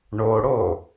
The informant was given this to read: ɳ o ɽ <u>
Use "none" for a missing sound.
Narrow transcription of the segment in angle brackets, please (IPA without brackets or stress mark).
o